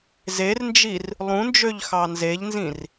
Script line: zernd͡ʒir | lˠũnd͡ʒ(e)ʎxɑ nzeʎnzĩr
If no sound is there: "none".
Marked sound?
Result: ø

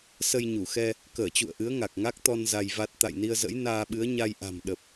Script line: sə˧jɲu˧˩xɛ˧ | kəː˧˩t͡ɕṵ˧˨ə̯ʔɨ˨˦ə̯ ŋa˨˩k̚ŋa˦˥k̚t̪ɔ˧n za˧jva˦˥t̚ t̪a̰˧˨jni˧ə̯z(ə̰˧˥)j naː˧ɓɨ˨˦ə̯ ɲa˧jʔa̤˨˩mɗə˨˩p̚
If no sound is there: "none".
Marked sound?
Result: ə̰˧˥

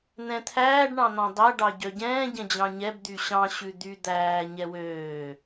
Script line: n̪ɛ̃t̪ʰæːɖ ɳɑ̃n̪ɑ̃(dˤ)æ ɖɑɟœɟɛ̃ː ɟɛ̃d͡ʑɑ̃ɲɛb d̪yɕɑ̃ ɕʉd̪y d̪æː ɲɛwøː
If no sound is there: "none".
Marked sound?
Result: dˤ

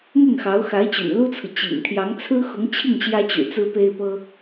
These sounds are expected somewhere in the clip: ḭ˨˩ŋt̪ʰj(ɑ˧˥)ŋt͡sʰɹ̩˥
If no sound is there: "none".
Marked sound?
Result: ɑ˧˥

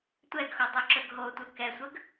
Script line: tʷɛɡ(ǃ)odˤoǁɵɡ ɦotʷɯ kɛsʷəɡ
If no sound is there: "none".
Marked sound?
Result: x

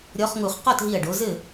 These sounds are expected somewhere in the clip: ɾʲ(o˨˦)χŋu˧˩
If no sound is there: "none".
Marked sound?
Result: ɔ˨˦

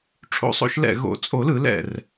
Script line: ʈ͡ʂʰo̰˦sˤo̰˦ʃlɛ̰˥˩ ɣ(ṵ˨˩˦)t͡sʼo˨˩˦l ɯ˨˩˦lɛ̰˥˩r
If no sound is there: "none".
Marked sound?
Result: o̰˨˩˦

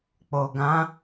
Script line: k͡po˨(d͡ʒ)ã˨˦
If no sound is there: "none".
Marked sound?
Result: ɡ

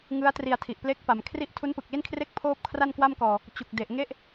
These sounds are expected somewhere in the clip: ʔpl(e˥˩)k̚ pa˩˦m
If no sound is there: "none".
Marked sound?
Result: e˦˥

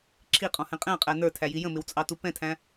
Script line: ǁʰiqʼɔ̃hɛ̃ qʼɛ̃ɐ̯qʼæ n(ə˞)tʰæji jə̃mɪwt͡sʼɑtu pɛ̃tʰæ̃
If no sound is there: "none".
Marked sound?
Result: ə˞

